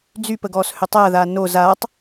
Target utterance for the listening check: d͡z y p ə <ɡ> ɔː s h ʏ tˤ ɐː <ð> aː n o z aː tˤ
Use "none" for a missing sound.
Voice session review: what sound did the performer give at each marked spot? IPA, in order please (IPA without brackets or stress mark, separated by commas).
ɡ, ð